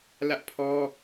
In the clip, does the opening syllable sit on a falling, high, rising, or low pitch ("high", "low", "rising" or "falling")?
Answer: high